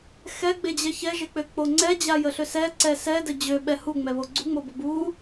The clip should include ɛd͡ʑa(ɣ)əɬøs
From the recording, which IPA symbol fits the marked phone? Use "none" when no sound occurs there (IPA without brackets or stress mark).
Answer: j